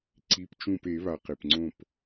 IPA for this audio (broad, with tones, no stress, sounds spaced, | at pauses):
ǀ i˩˧˩ p t͡ʃ ũ˧˩ p e˨˩˦ β a˩ q e˩ p ŋ͡ǀ õ˧˩ p